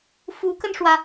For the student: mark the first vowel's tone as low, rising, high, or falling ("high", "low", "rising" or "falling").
rising